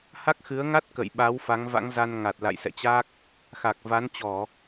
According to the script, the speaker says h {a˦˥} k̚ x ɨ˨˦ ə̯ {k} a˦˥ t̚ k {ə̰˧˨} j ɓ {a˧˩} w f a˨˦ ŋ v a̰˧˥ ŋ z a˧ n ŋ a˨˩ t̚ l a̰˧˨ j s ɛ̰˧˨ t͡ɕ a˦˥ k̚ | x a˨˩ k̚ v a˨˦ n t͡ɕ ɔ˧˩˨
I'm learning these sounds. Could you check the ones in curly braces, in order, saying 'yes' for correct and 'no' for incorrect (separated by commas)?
yes, no, yes, no